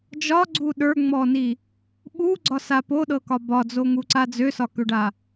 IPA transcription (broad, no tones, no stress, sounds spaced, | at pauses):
d͡ʒ ɒ ɡ͡ǀ u ɗ ə˞ ŋ͡m ɔ n i | ɓ u ɡ͡ǀ ɒ s a p o ɗ ɤ k ɒ b ɒ d͡z o ŋ u ǀ a d͡z ø s ɒ k ø ɖ a